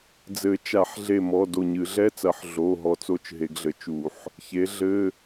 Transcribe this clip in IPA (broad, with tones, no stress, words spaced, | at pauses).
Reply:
d͡zɘ˨˩˦t͡ʃa˨˩˦ħɮe˧˩mɔ˩˧˩ do˧˩ɲɨ˨˩˦ ɮɛ˧˥˧t͡sɐ˨˩˦ħ ɮo˩˧˩ ɦɔ˧˩t͡so˧˥˧t͡ʃ ɦe˨˩˦ɡɮɘ˩˥t͡ʃu˨˩˦ħ | çe˩˥ɮɘ˧˥˧